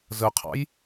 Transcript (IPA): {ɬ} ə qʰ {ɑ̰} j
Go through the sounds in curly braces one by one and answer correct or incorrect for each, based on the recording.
incorrect: z, correct

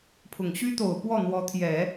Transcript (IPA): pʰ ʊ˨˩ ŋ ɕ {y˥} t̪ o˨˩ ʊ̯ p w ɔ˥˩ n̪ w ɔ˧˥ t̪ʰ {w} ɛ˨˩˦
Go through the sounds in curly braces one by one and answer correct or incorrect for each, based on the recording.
correct, incorrect: j

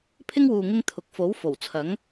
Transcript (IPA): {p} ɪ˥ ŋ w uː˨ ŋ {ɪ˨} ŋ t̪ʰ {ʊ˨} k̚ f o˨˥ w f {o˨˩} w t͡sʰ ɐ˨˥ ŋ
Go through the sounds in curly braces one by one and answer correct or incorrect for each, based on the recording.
incorrect: pʰ, incorrect: ɪ˥, incorrect: ʊ˨˥, correct

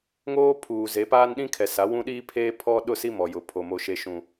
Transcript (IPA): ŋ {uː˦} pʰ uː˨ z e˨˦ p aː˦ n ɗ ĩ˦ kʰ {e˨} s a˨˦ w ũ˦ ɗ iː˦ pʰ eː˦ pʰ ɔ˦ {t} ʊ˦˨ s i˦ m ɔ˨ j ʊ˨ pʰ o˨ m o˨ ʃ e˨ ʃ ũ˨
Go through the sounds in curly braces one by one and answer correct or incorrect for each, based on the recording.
incorrect: oː˦, incorrect: ɛ˨, incorrect: ɗ

